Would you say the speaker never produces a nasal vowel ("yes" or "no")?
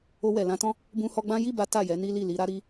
no